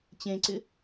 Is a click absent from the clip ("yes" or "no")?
no